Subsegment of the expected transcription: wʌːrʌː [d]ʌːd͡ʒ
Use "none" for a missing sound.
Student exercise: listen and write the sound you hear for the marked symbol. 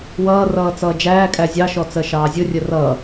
t͡s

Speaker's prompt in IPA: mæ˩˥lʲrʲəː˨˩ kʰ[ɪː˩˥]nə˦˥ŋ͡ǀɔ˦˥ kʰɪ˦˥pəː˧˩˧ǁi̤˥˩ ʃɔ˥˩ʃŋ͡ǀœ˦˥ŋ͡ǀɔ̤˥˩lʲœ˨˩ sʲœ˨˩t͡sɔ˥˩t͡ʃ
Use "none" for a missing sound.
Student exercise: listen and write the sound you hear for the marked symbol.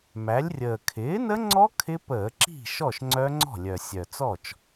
ɪː˩˥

